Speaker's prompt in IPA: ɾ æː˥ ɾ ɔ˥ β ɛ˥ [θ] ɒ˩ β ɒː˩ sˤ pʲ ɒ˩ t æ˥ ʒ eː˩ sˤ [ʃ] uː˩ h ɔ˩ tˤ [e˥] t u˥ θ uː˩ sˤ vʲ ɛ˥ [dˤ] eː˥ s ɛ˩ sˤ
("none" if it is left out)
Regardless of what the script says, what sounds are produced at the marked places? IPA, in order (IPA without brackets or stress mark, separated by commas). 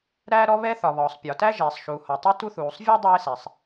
θ, ʃ, e˥, dˤ